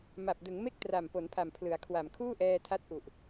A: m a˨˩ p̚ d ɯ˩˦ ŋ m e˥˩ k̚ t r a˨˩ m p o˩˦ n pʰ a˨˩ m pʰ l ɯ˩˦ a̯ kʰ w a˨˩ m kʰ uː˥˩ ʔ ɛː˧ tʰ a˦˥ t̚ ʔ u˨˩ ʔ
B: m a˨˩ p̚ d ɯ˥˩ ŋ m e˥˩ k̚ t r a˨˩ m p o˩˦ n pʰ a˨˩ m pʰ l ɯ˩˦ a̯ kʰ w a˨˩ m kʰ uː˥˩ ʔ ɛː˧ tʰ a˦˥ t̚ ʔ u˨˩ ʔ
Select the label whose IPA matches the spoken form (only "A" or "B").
A